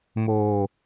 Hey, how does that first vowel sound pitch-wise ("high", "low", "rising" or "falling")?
low